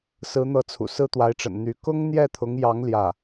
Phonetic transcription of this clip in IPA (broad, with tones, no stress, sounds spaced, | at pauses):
s ɹ̩˧˥ n̪ ɤ˧˥ t͡sʰ ṵ˨˩ s ɹ̩˥ t̪ w a˧˥ ɪ̯ ʈ͡ʂ ə̰˨˩ n n̪ y˧˥ k ʊ˥ ŋ n̪ j ɛ˥˩ t̪ʰ ʊ˧˥ ŋ j ɑ˧˥ ŋ l j ä˥˩